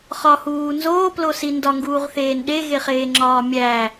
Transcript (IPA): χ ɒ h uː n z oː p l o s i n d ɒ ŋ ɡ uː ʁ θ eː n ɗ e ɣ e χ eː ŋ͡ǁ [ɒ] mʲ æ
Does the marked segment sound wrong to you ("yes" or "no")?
yes